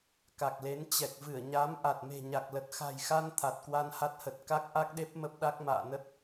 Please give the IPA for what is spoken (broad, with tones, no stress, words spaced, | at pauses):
ka˨˩k̚le˨˦n t͡ɕɛ˨˩k̚vɨ˧˩ə̯ɲa˨˦m ʔa˨˩t̚me̤˨˩ ɲa˨˩k̚lə˨˩t̚xa̤˨˩jxa˧n t̪ʰa˨˩t̚kwa˧nha˦˥t̚hə˨˩t̚ ka˦˥k̚ʔa˦˥k̚ɗe˦˥p̚ mə˦˥p̚ɗa˦˥k̚ ma̰ː˧˨nə˦˥t̚